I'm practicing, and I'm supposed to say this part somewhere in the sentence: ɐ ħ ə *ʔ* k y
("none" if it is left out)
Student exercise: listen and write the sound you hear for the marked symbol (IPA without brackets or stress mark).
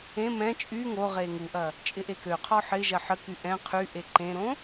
none